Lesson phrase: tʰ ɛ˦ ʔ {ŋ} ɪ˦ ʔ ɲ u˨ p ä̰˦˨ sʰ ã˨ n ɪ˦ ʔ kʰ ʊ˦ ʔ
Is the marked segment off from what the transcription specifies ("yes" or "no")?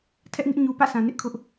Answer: no